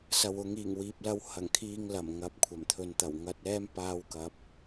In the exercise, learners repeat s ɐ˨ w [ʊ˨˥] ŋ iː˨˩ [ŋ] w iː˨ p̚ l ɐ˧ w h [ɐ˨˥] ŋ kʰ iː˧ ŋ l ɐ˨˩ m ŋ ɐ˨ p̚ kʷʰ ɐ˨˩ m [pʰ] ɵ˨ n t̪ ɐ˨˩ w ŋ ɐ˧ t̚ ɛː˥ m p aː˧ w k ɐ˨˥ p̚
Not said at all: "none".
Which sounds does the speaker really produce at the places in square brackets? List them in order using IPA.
ʊ˨˧, ŋ, ɐ˨˩, t̪ʰ

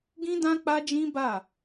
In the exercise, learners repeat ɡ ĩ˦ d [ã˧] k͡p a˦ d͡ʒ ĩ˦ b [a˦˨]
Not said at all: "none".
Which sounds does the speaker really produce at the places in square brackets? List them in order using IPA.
ã˦, a˦˨

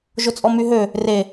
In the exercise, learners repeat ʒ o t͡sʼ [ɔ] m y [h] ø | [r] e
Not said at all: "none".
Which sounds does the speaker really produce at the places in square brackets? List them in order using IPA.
ɔ, ɦ, r

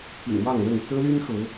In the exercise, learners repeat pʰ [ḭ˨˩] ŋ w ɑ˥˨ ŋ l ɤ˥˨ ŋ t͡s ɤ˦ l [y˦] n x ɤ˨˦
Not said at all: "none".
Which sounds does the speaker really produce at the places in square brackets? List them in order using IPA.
ḭ˨˩, y˦

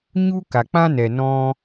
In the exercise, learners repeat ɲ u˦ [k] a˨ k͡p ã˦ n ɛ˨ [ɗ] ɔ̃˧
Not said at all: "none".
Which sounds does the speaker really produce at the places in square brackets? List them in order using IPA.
k, n

